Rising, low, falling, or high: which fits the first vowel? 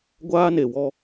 high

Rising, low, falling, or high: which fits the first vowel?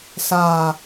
falling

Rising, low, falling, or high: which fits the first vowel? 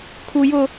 high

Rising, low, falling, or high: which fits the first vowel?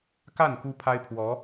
falling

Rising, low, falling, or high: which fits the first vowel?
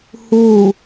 falling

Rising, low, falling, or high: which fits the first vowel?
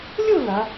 falling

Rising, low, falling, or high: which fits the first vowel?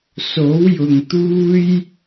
rising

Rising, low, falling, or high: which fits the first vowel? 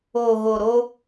low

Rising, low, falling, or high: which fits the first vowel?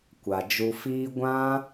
low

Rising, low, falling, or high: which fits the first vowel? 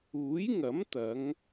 rising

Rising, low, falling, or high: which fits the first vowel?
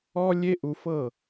high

